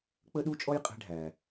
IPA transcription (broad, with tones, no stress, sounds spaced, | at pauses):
k͡p ə˥ ɗ u˥ t͡ʃʼ ɔ˥ j qʼ ɛ̤˥ ɖʱ æ˩